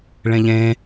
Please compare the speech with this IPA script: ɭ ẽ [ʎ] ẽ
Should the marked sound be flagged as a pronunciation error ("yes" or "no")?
no